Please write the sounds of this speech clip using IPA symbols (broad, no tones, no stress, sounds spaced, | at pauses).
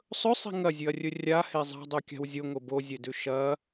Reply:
sˤ ɵ sˤ i̤ ŋ ɐ zʲ ʉ ɐ̯ rʲ ɵ rʲ a h e zˤ a̤ dˤ u kʲ a̤ w zʲ o ŋ o b o zʲ e d ʉ ʃ ɐ